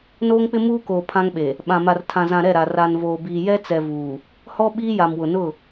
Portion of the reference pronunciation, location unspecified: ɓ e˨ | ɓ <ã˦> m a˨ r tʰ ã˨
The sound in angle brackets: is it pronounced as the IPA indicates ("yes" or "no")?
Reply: no